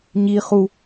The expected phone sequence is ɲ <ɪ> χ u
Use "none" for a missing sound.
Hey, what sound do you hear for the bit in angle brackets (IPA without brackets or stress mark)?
i